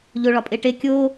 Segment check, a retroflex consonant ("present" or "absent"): present